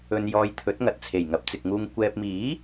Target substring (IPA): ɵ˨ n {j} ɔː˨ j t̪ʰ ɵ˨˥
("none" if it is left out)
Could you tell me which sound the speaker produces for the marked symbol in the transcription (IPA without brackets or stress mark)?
j